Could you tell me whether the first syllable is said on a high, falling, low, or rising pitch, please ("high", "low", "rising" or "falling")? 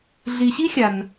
low